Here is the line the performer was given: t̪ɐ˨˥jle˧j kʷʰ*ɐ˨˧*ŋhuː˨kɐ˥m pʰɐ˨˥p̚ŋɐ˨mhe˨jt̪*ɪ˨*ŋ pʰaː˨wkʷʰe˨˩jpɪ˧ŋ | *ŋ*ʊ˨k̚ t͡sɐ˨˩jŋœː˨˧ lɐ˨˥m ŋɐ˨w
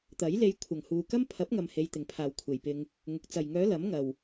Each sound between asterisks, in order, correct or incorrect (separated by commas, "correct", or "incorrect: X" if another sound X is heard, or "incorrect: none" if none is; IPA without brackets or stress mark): incorrect: ɐ˨˩, incorrect: ɪ˨˩, correct